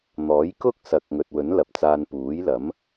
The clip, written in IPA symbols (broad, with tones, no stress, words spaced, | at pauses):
n̪ɔː˨˥jkʊ˥k̚ sɐ˨k̚ŋɵ˨t̚wɵ˨˥n lɐ˨p̚t͡saː˧n puː˨˥jlɐ˨˥m